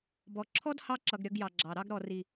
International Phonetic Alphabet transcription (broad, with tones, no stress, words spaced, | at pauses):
bɔ˨ ǁʰɔ˦dhɑ˧ǁʌ˨ɡ ɾʲʌ˧ɡjɑ˨ɡ͡ǁɑ˨ ɾɑ˧ɡɾɔ˨ri˨